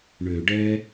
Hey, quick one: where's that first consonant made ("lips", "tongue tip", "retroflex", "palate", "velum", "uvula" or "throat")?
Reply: retroflex